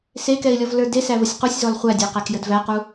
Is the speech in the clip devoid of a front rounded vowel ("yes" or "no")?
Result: yes